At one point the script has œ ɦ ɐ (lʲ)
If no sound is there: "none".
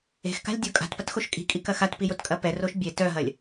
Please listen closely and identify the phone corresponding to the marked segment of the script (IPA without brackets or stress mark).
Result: lʲ